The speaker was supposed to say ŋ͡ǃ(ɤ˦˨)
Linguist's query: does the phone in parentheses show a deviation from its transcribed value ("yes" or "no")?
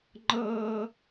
yes